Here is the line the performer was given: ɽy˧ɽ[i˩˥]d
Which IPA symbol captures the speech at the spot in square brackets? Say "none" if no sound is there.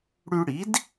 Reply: i˩˥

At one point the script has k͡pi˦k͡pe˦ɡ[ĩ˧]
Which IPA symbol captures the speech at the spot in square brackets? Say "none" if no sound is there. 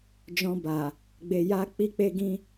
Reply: ĩ˦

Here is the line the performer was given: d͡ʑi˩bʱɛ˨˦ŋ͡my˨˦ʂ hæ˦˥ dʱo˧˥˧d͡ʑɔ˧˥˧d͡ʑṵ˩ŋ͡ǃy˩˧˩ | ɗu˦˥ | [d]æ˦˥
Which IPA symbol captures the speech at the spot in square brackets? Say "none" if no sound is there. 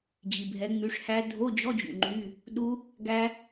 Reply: ɡ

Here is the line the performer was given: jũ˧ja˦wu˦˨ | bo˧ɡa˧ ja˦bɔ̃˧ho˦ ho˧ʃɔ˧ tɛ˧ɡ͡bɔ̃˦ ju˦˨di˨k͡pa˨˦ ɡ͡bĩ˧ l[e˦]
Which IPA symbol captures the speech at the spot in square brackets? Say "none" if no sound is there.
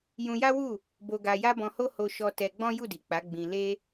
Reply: e˦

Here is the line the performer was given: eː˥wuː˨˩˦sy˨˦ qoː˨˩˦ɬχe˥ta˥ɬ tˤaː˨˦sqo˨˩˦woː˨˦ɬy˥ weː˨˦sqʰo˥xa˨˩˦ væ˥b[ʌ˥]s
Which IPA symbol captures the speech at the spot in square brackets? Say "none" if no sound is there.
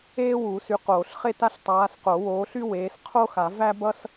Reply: ʌ˥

